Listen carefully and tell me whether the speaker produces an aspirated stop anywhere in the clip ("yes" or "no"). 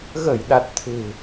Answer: yes